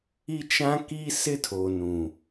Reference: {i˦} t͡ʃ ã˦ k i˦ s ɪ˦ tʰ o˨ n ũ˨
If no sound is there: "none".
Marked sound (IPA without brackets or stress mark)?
i˦